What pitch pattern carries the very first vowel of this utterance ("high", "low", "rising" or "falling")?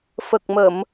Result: low